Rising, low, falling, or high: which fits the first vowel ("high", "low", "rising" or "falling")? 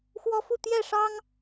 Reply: high